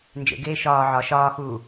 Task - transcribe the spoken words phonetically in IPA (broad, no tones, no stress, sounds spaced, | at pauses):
n d͡ʒ ḛ ɡ eː ʃ ɒː ʕ ɒ ʃ ɒː x uː